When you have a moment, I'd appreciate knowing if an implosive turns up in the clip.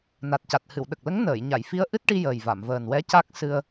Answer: yes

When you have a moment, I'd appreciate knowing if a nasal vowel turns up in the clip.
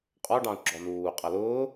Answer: yes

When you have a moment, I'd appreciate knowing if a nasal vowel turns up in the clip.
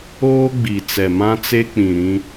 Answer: yes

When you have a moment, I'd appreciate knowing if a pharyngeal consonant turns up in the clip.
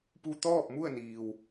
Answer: no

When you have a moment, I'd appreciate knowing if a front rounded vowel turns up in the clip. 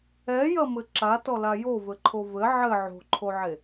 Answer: no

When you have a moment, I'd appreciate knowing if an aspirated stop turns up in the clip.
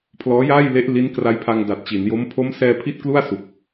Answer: yes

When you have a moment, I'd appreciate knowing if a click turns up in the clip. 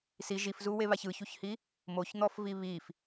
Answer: no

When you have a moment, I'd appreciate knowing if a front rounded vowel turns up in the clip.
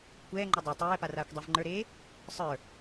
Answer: no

